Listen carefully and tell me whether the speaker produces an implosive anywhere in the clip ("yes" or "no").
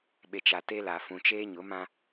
yes